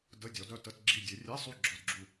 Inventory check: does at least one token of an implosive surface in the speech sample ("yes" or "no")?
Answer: no